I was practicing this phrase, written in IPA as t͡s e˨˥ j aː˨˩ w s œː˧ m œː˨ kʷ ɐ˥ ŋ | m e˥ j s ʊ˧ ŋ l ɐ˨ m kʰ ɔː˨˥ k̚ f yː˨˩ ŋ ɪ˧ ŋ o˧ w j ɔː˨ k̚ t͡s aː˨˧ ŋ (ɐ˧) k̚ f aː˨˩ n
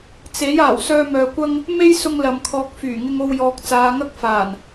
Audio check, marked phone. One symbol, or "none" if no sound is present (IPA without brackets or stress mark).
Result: ɐ˥